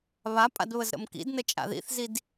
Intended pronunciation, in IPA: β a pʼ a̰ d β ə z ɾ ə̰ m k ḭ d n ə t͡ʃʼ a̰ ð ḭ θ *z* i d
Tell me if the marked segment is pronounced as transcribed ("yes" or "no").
yes